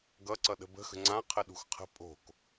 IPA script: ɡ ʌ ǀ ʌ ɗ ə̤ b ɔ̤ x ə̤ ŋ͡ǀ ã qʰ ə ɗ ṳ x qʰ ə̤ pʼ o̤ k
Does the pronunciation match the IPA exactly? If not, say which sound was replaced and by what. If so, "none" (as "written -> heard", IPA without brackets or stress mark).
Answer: ɔ̤ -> ə̤